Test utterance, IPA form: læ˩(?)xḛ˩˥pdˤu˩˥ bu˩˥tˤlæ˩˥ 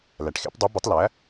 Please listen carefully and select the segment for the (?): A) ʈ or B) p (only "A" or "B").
A